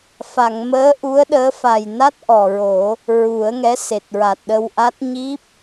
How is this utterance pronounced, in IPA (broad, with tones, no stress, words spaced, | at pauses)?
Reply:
fa˨˩˨ŋməː˧˥ ʔu˧˥ə̯ɗəː˧˥ fa˨˩jna˦˥t̚ ʔɔ˨˩ɹo˨˩˦ | ɹu˨˩˦ə̯ŋɛ˧˥ se˨˩t̚ɹa˨˩t̚ɗə˧wʔa˦˥t̚ ɲi˦˥p̚